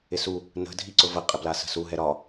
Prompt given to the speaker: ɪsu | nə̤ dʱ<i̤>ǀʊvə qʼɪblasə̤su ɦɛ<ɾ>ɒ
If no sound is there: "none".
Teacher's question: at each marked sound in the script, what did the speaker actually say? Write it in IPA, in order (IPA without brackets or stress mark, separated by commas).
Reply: i, ɾ